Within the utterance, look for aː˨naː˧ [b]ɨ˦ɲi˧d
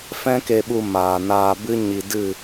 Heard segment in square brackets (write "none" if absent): b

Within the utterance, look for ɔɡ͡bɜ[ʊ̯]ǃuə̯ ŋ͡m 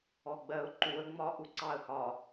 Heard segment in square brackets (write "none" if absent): ʊ̯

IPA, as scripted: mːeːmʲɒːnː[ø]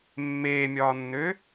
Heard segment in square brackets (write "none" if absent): ø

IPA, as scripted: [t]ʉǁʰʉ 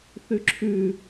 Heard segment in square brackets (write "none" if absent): θ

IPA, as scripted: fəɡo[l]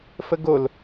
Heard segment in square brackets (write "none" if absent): l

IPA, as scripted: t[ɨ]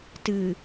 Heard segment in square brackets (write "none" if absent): ɨ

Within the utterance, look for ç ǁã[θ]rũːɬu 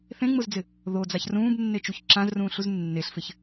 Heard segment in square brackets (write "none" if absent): z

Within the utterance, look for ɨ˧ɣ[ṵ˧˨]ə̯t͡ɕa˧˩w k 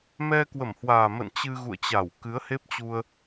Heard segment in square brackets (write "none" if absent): ṵ˧˨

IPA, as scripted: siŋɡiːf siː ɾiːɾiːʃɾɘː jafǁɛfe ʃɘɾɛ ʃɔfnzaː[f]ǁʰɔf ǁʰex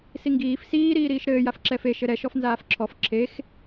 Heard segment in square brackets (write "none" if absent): f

